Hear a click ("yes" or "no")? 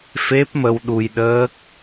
no